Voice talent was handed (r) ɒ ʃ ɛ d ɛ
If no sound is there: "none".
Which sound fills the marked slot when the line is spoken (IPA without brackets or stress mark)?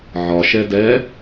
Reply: ʕ